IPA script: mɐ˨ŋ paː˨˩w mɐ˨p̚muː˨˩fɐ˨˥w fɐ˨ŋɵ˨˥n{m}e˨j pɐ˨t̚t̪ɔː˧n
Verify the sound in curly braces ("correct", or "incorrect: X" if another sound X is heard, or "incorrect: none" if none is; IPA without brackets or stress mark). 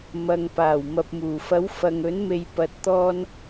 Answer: correct